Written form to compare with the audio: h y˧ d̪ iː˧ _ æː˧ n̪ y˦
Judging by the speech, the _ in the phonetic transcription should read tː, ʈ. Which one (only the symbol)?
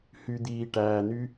ʈ